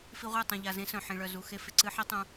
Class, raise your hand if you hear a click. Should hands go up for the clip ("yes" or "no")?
yes